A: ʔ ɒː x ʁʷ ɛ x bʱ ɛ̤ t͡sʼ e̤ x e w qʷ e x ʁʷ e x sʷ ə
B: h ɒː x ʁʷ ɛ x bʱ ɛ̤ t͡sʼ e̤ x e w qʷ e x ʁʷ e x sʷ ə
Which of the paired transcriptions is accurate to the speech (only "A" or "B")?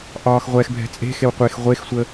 A